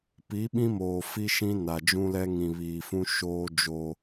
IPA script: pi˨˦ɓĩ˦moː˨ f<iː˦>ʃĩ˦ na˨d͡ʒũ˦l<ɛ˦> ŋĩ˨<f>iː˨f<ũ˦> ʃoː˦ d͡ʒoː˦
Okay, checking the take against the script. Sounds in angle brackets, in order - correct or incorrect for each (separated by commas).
incorrect, correct, incorrect, correct